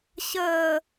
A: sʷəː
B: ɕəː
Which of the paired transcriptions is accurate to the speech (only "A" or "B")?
B